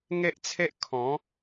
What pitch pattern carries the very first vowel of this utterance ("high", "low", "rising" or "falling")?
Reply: high